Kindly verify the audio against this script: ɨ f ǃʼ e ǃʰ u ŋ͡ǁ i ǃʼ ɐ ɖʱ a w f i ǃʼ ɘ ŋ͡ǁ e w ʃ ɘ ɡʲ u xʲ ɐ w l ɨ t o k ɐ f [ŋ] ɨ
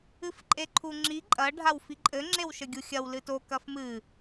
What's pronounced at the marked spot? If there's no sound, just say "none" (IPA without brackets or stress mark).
m